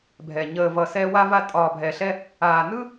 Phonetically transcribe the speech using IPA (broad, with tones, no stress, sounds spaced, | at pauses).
bʱ ɛ˨ ɲ əː˨ v ʌ˨ s ɛ˦ w a˦ v a˦ tʼ ɒː˨ bʱ ɛ˨ ɬ ɛ˦ | aː˨ n ɯ˦